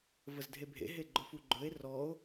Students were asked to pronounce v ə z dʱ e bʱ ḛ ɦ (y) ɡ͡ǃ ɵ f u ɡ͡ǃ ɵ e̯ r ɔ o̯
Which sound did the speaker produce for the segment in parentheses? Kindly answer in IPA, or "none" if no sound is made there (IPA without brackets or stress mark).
e